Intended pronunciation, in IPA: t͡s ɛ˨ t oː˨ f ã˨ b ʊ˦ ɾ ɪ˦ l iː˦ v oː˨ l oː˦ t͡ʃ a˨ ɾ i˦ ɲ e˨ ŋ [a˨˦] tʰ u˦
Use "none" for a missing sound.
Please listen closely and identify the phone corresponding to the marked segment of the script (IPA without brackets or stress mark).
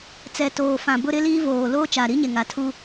a˨˦